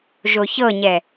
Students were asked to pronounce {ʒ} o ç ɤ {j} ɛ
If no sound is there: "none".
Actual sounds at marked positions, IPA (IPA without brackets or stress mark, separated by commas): ʒ, ɲ